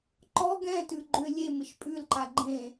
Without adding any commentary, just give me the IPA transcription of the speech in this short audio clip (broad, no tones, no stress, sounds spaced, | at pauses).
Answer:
ǃ ɔ ɡ ɛ̃ t ʉ ɡ͡ǃ ʏ lʲ e m ɪ ʃ pʼ ʉ l ǃ a ɡ͡ǃ ẽ